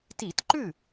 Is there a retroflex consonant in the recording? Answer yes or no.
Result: no